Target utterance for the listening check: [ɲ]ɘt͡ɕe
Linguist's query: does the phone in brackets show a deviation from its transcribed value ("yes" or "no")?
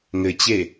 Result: yes